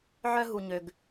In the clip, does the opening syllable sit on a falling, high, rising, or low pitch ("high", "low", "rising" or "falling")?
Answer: high